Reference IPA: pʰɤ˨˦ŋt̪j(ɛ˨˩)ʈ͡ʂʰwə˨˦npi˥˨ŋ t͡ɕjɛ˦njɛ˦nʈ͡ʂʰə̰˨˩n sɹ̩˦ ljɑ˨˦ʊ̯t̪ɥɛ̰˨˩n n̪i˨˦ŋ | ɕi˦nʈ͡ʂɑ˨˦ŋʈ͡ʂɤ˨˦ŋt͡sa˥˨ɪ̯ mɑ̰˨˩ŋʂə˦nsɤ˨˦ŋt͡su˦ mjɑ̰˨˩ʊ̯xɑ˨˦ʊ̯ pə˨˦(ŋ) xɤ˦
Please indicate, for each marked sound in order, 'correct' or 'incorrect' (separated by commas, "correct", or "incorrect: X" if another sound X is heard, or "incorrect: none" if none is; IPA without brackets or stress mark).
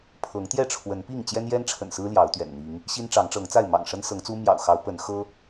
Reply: incorrect: ɛ˥˨, incorrect: n